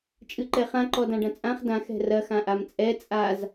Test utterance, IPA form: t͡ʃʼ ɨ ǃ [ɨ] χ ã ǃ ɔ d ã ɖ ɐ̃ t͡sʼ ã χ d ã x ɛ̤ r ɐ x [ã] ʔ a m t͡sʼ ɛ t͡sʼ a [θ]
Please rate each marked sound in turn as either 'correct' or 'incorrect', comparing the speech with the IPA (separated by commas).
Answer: incorrect, correct, incorrect